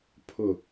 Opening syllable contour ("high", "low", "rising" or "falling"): low